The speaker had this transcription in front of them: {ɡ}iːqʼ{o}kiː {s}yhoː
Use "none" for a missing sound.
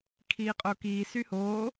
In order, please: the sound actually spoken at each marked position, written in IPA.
kʰ, o, s

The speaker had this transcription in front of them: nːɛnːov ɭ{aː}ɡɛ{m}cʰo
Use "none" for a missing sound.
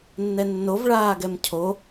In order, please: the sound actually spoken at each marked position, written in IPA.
aː, m

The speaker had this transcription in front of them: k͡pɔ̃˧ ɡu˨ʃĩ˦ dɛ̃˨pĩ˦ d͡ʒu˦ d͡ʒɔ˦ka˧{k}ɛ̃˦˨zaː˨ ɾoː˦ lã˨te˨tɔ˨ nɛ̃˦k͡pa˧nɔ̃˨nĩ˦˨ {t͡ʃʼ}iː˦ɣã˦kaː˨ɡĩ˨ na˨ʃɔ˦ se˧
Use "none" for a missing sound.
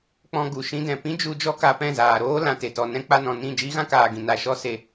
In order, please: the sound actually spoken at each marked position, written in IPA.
p, d͡ʒ

